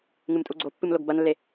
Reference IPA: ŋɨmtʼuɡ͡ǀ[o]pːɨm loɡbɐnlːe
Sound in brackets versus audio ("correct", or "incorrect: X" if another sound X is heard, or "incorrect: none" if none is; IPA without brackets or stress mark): correct